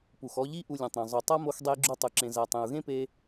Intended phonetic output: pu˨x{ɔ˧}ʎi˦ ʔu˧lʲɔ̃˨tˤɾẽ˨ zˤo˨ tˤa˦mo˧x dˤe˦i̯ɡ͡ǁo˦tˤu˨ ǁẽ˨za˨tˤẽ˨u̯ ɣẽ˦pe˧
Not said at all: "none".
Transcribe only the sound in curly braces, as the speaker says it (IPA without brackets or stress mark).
ɔ˧